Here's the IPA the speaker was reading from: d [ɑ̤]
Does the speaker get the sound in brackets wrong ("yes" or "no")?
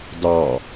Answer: yes